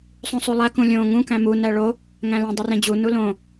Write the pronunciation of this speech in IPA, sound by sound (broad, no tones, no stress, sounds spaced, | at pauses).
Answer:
sˤ ũ sˤ u lˠ æ k ũ lʲ õ ŋ ũ k æ̃ m u n æ ɭ o | ŋ æ̃ l ẽ dˤ u r ẽ d͡ʑ u n u l õ